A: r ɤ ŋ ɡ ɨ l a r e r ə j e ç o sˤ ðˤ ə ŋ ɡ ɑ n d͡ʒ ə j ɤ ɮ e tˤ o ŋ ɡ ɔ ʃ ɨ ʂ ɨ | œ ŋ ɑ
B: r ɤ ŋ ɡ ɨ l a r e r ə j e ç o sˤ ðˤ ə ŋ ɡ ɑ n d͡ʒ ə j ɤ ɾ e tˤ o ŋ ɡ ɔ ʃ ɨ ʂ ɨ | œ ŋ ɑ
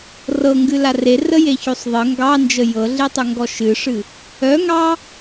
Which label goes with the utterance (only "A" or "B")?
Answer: A